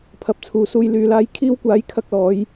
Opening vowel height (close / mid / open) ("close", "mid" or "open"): open